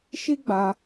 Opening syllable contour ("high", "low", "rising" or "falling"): high